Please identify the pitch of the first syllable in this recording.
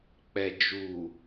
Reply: low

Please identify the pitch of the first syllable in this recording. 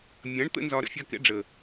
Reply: rising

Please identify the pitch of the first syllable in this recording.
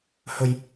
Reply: low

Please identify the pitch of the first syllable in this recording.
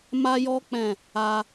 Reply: high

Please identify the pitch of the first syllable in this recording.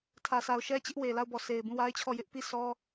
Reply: low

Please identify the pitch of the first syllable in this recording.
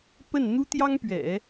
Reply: falling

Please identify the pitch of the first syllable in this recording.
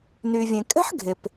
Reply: low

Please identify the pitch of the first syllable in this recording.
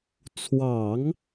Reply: low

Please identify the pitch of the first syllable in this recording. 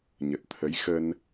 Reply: low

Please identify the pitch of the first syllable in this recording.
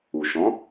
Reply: low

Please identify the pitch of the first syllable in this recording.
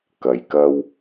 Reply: low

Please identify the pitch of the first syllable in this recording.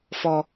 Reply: high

